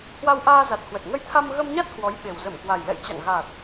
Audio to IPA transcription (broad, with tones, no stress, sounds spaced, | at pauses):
h w a˧ w ʔ aː˧ z a˨˩ t̚ h w ə˨˩ t̚ ŋ ə˧ j t̪ʰ a˧ m ɣ ə˧ m ɲ a˦˥ t̚ h w ɔ˨˦ j ɓ e˨˩ w z ə˧˩ m k w a˨˩ j l ɛ̰˧˨ j t͡ɕ a̰˧˨ ŋ ɣ a˨˩ t̚